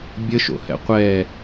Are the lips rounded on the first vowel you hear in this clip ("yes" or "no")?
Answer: no